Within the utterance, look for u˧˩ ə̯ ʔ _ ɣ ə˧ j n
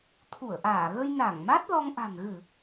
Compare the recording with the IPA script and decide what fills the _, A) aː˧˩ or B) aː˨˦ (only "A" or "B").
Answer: A